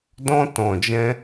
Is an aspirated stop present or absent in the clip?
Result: absent